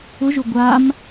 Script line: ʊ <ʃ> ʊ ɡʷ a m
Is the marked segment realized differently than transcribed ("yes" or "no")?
yes